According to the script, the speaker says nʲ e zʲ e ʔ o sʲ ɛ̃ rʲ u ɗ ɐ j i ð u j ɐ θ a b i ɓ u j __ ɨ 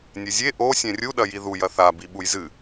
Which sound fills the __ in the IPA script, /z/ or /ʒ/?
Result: z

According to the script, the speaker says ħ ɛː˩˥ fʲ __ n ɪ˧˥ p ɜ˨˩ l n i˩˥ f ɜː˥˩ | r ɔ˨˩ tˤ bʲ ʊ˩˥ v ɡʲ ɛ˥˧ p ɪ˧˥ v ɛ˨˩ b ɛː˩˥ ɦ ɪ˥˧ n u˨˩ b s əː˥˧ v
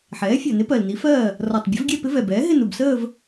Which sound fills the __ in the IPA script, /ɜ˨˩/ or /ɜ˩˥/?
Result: ɜ˨˩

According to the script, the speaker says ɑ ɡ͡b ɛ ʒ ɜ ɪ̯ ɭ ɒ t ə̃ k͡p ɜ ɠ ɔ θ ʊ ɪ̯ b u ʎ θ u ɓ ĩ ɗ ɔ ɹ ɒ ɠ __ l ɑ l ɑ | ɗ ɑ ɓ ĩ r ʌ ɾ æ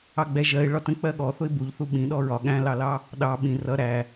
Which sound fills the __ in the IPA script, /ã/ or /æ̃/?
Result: æ̃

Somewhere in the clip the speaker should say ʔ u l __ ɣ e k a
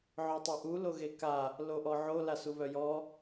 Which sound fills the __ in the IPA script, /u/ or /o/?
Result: o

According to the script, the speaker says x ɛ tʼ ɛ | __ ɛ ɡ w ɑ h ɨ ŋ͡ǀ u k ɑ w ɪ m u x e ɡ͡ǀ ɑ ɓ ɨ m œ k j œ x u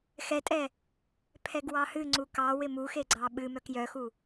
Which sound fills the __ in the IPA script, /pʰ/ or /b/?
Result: pʰ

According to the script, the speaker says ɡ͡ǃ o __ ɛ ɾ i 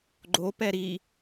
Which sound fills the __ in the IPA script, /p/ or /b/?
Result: p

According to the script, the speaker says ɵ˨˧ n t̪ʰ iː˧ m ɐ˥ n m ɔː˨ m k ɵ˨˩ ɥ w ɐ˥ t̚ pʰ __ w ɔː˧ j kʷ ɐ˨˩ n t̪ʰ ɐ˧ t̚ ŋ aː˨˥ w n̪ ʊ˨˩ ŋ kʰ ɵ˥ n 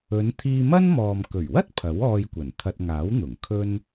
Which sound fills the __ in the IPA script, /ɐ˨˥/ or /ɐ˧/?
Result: ɐ˨˥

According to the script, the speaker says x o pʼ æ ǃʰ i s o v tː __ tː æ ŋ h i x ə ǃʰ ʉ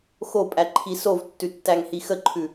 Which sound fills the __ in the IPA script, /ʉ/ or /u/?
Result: ʉ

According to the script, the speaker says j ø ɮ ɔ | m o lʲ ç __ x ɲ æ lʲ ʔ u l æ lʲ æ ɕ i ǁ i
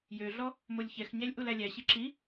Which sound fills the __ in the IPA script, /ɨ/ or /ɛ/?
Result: ɛ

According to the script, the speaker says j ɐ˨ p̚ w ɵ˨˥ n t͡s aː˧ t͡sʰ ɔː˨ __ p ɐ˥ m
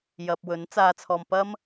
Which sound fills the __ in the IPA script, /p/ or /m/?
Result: m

